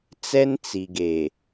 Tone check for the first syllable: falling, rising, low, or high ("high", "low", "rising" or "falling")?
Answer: high